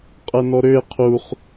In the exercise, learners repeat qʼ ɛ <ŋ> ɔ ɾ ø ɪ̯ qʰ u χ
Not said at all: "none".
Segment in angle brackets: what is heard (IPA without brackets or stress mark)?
n